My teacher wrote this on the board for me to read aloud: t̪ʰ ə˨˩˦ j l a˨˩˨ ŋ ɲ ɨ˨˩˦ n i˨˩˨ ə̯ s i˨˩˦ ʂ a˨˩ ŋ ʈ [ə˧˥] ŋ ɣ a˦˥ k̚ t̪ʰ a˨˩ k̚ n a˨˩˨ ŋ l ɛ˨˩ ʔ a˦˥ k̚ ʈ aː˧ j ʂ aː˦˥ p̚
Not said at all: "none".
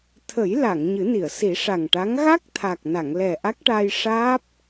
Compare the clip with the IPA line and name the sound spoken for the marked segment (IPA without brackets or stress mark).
a˧˥